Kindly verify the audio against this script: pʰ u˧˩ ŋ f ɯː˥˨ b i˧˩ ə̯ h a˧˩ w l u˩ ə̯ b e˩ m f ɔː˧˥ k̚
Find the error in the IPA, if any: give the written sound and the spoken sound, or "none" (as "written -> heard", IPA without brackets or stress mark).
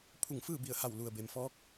none